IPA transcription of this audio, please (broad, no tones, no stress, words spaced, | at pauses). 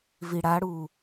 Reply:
viɽaɽu